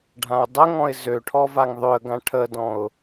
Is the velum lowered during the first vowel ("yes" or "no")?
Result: yes